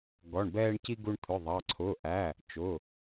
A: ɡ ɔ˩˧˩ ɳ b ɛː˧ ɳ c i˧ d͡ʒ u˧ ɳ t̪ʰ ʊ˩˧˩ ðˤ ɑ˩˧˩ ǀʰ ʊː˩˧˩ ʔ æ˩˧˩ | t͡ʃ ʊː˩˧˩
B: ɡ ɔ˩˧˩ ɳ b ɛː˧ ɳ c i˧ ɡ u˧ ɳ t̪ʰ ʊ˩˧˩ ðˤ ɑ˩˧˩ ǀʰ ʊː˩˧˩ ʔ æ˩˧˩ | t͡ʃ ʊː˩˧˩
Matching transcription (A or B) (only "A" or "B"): B